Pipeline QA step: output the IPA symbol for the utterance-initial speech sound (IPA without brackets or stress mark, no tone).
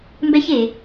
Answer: m